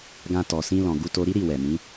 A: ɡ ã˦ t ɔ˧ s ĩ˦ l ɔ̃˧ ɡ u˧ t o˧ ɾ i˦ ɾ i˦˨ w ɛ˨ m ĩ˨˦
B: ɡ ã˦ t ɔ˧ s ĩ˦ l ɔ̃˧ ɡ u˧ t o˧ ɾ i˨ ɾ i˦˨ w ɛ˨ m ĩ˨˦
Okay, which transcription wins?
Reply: A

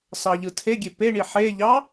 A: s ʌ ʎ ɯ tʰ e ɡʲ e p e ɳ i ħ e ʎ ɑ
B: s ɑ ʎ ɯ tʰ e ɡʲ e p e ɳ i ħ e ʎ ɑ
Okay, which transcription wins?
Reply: B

